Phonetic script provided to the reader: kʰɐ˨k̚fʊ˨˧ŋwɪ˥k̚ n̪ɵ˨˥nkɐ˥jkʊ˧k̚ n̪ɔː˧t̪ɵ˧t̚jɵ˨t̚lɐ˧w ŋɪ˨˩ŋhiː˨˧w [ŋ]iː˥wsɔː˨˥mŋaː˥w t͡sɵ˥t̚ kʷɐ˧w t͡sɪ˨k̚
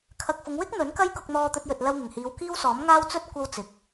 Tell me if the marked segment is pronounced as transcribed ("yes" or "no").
no